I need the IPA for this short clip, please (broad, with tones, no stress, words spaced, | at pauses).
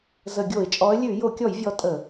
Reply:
zə˧˩˧ɡʲo˧˩˧ɪ̯ t͡ʃʼɔ˨˦ə̯lʲʉ˧˩˧ jo˧˩˧kʲɔ˧˩˧jvʲɔ˨˦ tʼə˧˩˧